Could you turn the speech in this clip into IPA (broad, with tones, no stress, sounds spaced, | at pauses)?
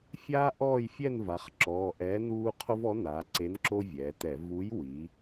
fʲ aː˦ ʔ ɔː˦˨ j fʲ ɛ˦˨ n v a˩˧ χ ǁ ɔː˩˧˩ ʔ ɛː˨˥ n uː˦ qʰ o˦ v ɔ˨˥ n a˩˧ ǀ e˨˥ n ǁ o˦ vʲ ɛː˩˧ t ɛ˧˩˧ v u˨˥ j w i˩˧